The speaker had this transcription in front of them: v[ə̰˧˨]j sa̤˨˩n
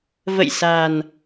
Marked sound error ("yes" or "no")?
no